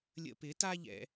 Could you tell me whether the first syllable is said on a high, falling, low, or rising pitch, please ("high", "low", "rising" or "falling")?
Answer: high